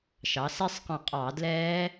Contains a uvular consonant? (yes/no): yes